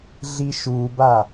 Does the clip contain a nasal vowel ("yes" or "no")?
no